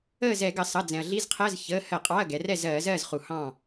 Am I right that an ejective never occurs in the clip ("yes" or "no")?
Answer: no